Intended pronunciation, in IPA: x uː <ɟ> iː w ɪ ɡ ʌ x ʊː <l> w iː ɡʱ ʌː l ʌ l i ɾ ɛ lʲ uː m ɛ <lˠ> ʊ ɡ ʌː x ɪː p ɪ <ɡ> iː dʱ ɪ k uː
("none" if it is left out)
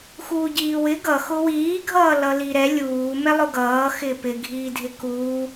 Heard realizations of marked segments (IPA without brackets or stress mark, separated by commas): ɟ, none, lˠ, ɡʱ